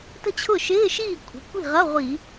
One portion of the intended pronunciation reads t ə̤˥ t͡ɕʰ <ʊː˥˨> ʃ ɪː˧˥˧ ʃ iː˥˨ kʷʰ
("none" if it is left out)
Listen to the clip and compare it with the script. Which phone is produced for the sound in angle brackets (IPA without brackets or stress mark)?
ʊ˥˨